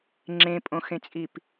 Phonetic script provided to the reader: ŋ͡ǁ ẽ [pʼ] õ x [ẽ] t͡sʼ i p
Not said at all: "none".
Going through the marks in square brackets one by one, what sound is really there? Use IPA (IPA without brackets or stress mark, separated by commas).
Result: pʼ, ẽ